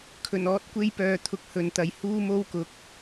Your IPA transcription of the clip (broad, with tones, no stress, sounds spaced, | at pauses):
kʰ ɵ˨˩ n ɔː˨˥ t̚ kʷ e˧ j p œː˨ t̪ʰ ʊ˨ k̚ h ɵ˨ n t̪ ɐ˨ j h uː˥ m o˥ w k ʊ˨˥ k̚